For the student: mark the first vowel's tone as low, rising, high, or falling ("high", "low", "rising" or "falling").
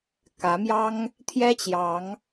rising